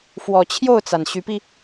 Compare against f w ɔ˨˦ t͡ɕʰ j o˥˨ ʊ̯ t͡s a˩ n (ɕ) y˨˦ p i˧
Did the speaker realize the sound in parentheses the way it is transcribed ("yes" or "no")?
yes